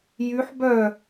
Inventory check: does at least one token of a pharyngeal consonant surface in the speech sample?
yes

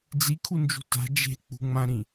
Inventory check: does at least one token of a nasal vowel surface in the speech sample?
yes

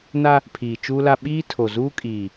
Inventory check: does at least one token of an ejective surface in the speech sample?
yes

